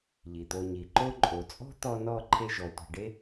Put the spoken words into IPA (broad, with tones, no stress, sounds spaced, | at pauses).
ʎ i˩ t̪ o˨ ɲ i˩ ǃ o˦ ǃʼ o˩ t͡sʼ ɔ̤˥ t̪ ɔ˦ n ɔ˦ ǃʰ e˦ ʒ ɔ˩ tʷ e̤˨ ɖ e˥